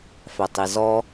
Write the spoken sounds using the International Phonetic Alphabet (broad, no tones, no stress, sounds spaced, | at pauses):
f æ tˤ i z ɔ